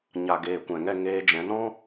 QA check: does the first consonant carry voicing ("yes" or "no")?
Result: yes